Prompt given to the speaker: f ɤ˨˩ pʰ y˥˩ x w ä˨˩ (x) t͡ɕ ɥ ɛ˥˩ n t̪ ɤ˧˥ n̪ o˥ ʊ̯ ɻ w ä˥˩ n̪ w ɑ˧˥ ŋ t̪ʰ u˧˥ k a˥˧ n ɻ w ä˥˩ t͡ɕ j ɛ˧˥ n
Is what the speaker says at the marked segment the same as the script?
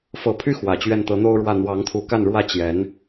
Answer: no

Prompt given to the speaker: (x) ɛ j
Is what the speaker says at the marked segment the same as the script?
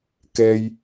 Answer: no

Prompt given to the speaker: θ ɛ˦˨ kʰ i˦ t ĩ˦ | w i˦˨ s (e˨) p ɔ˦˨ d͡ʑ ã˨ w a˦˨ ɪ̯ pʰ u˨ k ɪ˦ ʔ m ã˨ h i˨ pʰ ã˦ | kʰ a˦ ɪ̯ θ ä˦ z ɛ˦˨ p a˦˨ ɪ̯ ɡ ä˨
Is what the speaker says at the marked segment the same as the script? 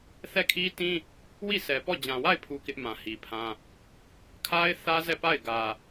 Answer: no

